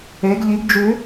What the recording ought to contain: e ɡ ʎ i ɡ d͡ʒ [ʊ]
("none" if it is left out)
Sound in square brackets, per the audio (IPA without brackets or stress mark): ʉ